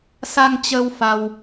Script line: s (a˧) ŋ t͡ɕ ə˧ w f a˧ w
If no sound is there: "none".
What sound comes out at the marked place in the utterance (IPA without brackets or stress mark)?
a˧